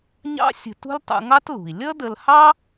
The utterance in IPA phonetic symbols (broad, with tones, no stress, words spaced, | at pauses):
ɲɑ̰˥sʲə̤˧ tṳ˥ltˤṵ˧ŋɑ˥tlṳ˩i̯ lʲʌ˥də˧lhɑ˥